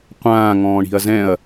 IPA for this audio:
qʷ ãː ŋ ɔ̃ː ɳ i̤ ɐ̯ z ɛ̃ ɐ̯

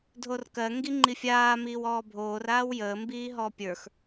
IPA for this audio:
dʱ o r k ɜ ŋ ɡ i ŋ͡ǃ i fʲ aː m iː w ɔː bʱ oː r aː w j əː m b iː ɦ ɔ pʲ ə˞ x

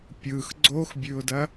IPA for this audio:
pʲ ɯ x ɡ͡ǀ o x bʲ ʉ ʊ̯ d ɐ

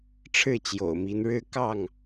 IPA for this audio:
ʈ͡ʂʰ ɻ̩˥˨ t͡ɕ j o̰˨˩ ʊ̯ m i˨˦ n ɻ ɻ̩˦ k ɑ˥˨ ŋ

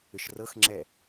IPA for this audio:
ʏ ʃ r ɤ x ŋ͡ǁ ɛ

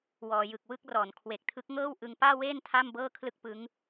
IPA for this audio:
w ɔː˩˦ j ɯ˨˩ k̚ w ɯ˥˩ k̚ r ɔː˩˦ n kʰ w e˨˩ k̚ tʰ ɯ˦˥ k̚ ŋ ɤː˥˩ w ʔ ɯ˧ ŋ p aː˥˩ w eː˥˩ n tʰ a˥˩ m b ɤː˥˩ kʰ l ɯ˥˩ k̚ p ɯ˦˥ ŋ

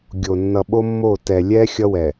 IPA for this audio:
ɡʲ o˨ nː ʌ˨ ɓ o˦ mː o˦˨ t ɛ˨ lʲ ɛ˦ xʲ ʌ˦ w ɛ˨

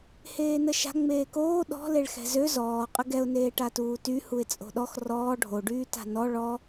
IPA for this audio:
h eː n ə ʃ a̤ ŋ͡m eː k oː ɗ ɔ̤ l e ɭ x ɛ̤ z ø z ɔː qʼ ə ɡ ɛ ʊ̯ n eː ʈ a t uː t y h u ɪ̯ t͡sʼ o̤ ɗ ɔ x r ɔː ɖʱ o ɖ yː t a̤ n ɔ ɭ ɔ

